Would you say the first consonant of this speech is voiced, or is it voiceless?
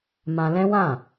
voiced